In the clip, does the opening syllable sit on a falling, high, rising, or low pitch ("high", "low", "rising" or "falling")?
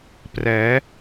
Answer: rising